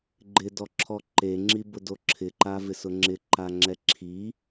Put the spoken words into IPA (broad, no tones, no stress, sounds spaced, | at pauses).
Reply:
ɡ͡ǃ ɪ d ɔ ǁʰ ɔ ǃ e ŋ͡ǁ i b ʊ d o ǁʰ ɪ ǃ a v ɪ s ʊ ŋ͡ǁ ɪ ǃ a ŋ͡ǁ ɛ ǁʰ i